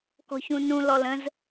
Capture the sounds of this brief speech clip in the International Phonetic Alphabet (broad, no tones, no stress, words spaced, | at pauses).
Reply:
kɔ̤çũnũ lɔlə̃z